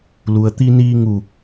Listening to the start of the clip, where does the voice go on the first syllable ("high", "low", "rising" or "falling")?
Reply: low